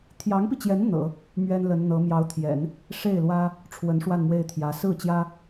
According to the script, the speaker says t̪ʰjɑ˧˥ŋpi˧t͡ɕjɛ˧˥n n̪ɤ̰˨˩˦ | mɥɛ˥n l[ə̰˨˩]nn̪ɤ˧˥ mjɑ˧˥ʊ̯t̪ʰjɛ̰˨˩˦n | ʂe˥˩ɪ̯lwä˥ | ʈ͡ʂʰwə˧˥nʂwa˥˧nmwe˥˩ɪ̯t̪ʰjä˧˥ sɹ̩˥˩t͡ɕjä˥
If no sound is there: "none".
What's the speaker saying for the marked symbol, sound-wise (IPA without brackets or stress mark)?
ə˧˥